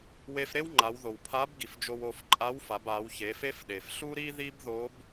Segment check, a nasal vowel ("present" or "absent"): absent